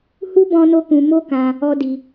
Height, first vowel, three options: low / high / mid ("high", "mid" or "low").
high